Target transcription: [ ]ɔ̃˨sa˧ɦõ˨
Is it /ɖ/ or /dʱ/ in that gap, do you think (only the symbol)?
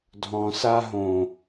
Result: dʱ